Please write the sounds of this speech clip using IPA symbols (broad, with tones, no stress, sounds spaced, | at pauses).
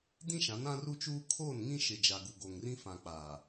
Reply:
d ĩ˦ ʃ ã˨˦ n ã˦ r u˦ t͡ʃ uː˦ kʰ oː˦˨ n ŋ ĩ˦ ʃ ɪ˨ d͡ʒ a˨ ɡ u˨ ɡ o˨ ŋ r ĩ˦ f ã˨ k͡p aː˨